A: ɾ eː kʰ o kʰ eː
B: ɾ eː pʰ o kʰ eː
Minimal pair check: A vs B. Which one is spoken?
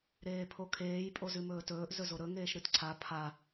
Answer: B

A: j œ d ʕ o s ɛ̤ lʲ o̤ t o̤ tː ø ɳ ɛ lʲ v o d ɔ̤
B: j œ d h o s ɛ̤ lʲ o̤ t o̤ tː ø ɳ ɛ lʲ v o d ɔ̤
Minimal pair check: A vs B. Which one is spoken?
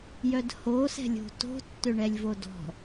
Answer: B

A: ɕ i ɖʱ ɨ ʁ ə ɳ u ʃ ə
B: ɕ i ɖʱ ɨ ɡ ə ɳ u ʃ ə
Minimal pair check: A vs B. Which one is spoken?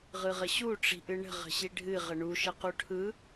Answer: A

